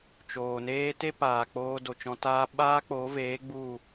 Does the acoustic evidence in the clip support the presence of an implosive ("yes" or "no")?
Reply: yes